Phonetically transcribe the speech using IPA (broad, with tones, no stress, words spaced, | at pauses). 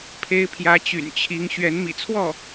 pʰe˧˥ɪ̯pʰjä˧˥t͡ɕy̰˨˩nt͡ɕʰi˧˥ŋ ɕɥɛ˧˥nmḭ˨˩t͡sʰwɔ˥˩